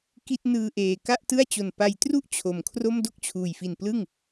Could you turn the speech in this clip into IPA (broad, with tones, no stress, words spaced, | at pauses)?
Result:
ki˥˩t̚ nɯː˧ʔeː˨˩ ka˥˩ʔtɯ˥˩a̯ t͡ɕo˨˩n pa˧j tru˥˩ʔ t͡ɕʰo˨˩mkʰro˥˩m do˥˩k̚t͡ɕʰuː˨˩jfi˨˩n plɯ˥˩ŋ